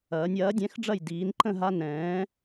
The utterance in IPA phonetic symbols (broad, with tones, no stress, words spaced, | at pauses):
ɐː˩˧nʲ ɐː˩˥dʲɛ̃˩˥xɖ͡ʐɐ˥˨j diː˩˧nǃə̃˥˨ɦa˦ nɛ̃ː˩˥